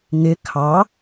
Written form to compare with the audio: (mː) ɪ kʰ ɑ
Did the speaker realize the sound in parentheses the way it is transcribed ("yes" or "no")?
no